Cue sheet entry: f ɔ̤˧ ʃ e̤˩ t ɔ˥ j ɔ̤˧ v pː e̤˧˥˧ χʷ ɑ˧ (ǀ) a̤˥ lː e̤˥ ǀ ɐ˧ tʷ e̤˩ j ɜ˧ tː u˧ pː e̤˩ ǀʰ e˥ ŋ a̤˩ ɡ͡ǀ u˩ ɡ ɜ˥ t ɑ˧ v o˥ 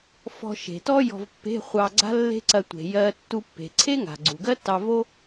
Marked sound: incorrect: ɡ͡ǀ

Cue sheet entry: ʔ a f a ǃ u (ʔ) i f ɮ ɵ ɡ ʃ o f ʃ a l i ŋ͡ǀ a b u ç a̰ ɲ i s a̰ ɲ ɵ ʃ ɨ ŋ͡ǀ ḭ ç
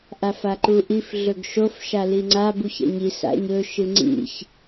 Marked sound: correct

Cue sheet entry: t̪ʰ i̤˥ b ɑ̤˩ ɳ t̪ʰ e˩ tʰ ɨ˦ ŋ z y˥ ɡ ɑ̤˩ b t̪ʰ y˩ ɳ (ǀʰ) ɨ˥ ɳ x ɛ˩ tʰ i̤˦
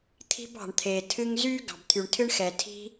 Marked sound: incorrect: tʰ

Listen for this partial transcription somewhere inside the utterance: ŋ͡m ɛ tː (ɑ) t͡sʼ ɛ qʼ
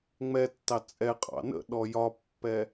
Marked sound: correct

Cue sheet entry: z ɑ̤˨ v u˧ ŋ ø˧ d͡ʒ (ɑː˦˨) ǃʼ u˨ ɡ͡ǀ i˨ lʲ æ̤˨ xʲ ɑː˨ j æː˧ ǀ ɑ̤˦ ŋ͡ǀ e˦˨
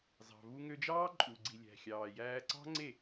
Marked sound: incorrect: ɑː˦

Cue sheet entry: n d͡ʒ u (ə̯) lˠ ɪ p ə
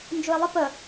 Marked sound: incorrect: ɪ̯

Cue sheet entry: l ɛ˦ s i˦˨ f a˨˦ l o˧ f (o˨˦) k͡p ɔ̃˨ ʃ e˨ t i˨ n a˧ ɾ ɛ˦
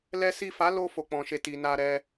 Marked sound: incorrect: o˨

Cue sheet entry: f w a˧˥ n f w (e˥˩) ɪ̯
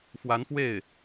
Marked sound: correct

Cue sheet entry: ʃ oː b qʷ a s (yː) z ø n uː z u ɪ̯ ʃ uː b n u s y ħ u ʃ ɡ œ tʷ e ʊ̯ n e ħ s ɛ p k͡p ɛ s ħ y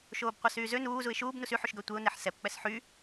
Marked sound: correct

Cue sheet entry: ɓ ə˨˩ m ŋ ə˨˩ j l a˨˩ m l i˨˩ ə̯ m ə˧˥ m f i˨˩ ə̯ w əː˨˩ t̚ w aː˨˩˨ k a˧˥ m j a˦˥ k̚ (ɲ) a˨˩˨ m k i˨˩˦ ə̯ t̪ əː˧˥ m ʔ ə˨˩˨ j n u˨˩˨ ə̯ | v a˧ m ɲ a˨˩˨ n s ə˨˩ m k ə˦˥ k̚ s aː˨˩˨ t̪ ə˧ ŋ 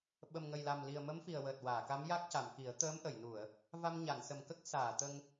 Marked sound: incorrect: c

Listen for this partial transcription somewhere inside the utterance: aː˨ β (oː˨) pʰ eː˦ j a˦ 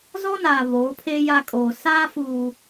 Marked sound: incorrect: oː˨˦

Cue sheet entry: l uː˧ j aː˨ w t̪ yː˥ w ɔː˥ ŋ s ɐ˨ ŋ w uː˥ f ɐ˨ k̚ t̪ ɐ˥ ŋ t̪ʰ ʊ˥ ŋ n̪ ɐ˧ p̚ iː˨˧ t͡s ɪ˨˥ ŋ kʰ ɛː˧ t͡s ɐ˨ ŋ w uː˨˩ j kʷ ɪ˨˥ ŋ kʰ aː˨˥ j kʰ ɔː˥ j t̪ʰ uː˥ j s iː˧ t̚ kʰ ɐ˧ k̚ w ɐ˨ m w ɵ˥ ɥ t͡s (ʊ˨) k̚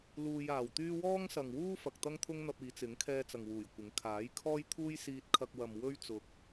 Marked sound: correct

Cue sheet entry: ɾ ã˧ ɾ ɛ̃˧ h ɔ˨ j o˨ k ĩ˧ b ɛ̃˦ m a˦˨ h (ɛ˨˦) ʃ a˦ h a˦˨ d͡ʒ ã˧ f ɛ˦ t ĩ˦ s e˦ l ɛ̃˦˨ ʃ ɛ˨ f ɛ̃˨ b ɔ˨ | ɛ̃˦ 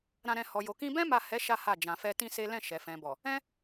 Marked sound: correct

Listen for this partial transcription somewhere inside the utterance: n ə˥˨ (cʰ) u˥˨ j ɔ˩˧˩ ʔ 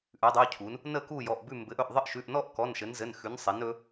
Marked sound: incorrect: k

